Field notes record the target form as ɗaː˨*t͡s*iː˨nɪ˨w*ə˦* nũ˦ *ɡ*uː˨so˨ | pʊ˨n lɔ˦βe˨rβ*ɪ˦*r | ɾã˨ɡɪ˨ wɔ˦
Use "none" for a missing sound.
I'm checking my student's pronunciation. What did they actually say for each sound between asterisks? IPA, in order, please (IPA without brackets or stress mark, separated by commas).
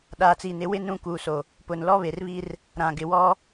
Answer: t͡s, ɪ˦, k, i˦